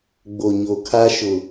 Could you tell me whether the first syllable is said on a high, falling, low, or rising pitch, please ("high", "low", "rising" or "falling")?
low